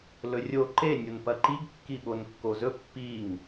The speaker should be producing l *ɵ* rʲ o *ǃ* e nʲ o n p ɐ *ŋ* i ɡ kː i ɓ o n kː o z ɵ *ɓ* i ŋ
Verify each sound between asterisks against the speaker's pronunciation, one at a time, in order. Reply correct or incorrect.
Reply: correct, correct, incorrect: ǃ, incorrect: pː

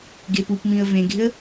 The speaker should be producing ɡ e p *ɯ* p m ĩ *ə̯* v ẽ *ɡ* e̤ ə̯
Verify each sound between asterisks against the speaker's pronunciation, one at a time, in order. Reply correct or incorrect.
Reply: incorrect: u, correct, correct

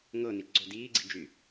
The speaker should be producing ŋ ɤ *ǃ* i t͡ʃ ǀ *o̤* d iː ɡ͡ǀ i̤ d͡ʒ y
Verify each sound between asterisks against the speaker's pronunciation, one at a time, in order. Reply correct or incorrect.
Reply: incorrect: n, correct

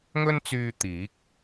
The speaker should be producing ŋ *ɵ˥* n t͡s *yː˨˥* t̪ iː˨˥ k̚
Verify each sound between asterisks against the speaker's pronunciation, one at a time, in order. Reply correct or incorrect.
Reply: correct, incorrect: yː˧

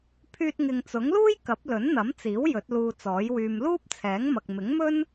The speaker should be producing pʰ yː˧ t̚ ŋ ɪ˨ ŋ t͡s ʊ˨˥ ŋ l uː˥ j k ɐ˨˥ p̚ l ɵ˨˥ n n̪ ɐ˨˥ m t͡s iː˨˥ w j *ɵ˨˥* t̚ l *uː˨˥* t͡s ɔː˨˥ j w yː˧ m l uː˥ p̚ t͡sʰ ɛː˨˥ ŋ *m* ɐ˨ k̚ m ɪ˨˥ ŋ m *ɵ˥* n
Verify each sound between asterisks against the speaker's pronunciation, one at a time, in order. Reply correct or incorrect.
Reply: correct, incorrect: uː˧, correct, correct

